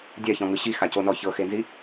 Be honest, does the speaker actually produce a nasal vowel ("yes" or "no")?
yes